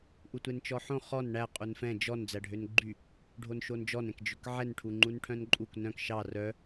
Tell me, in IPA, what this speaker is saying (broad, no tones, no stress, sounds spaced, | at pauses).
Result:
ʔ u tʷ e n t͡ʃ ɔ ħ õ χ ɔ n ɳ æ qʼ u n f ɛ̃ d͡ʒ ɔ n d͡z æ ɖʱ ø n ɡ͡ǃ y | ɖʱ o n ʃ o n d͡ʒ ɔ n ɛ̃ k d͡ʒ ø k ʕ ɛ n ʈʰ u ŋ͡ǃ u n ʈʰ œ̃ n ǃʼ u k n œ̃ k ʃ ɑ r œ